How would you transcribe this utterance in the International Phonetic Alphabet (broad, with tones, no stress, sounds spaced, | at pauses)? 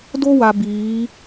d o˦ w a˨ b iː˨˦